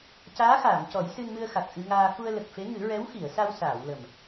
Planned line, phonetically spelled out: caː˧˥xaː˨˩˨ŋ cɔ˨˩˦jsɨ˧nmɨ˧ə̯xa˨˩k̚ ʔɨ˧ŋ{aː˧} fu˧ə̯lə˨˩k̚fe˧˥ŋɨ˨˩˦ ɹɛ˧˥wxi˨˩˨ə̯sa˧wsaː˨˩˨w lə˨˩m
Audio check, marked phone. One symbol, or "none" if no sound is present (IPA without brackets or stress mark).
aː˧